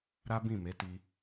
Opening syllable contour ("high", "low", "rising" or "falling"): high